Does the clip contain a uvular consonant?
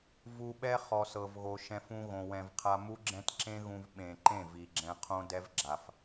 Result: yes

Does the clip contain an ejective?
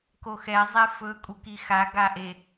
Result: yes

